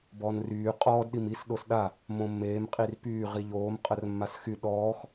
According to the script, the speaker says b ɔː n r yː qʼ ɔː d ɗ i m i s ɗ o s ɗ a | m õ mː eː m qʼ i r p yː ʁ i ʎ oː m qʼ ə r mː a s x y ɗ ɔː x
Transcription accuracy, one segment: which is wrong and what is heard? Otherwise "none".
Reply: none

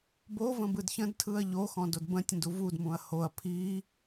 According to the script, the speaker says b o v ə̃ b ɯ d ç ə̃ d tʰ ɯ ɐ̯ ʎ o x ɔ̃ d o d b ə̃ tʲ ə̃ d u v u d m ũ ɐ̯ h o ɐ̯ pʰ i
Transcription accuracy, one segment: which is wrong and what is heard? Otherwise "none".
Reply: none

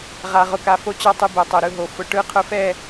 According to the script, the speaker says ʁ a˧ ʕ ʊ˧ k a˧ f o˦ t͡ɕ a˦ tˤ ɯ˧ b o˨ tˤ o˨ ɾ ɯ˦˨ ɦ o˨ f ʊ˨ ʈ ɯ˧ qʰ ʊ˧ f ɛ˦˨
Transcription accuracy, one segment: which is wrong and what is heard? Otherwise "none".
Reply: ʕ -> ʁ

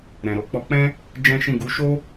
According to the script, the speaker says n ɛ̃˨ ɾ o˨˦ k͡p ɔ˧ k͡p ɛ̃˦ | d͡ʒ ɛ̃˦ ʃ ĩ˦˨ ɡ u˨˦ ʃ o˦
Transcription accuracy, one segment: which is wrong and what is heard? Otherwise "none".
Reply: n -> ɾ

